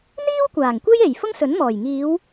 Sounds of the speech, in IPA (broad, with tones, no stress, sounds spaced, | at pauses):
n̪ iː˥ w kʷ aː˨˩ ŋ kʷ e˥ j e˨˩ j f ʊ˥ ŋ s ɵ˨˥ n m ɔː˨˩ j ŋ iː˨˧ w